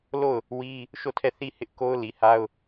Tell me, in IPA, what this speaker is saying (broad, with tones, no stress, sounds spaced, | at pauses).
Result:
l o˦˨ ʊ̯ | w i˦ | ʃ o˦˨ tʰ ɛ˦˨ θ i˦˨ h ɪ˦ ʔ k o˦ ʊ̯ l i˨ h a˦ ʊ̯